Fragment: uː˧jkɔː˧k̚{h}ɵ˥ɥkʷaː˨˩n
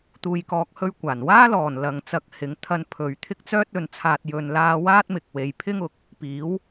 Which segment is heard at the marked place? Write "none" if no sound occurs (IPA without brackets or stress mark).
h